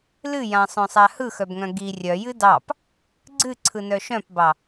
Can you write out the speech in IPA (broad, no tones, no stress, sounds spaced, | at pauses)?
l ɨ j ã sˤ œ̃ sˤ a h ɯ x œ b ŋ œ̃ ɡ i rʲ œ j ɨ d ɑ p | ɡ͡ǀ ɨ ǀʰ ɯ n œ ʃ œ̃ p b ɑ